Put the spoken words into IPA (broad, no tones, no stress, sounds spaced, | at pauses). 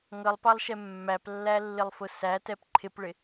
ŋ ʌ lˠ p ɑ lˠ ʃ ɛ mː æ p lː æ lː ɪ lˠ f ʊ s æ t ɛ p ǃʰ ɪ p ɭ ɪ